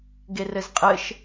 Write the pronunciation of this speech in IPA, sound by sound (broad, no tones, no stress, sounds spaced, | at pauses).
ɡ e r ɘ z qʼ ɘ ʃ